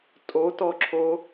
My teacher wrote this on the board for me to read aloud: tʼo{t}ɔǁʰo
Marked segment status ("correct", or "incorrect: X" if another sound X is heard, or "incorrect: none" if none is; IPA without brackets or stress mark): correct